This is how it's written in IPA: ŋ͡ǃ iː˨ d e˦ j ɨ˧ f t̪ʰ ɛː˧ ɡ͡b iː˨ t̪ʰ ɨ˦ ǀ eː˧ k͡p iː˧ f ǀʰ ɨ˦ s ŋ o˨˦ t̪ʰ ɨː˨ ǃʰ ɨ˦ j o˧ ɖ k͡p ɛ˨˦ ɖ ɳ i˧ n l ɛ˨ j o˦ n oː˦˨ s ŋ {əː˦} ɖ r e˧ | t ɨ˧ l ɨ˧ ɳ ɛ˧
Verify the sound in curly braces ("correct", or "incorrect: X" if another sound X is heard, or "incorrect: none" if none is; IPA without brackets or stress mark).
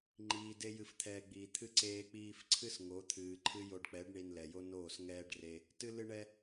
incorrect: ɛː˦